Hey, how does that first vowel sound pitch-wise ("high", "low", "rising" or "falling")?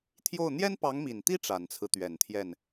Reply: falling